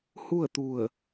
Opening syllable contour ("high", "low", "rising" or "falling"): falling